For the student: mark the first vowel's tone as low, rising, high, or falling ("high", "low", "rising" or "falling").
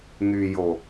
low